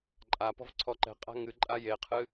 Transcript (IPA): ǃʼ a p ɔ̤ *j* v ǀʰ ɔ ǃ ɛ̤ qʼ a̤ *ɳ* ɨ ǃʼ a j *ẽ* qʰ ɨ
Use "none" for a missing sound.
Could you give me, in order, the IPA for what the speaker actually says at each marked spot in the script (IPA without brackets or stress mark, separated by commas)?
none, ŋ, e